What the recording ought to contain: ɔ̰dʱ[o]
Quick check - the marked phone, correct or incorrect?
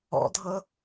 incorrect